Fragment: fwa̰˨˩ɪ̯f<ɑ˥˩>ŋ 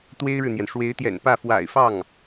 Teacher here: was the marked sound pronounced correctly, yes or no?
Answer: yes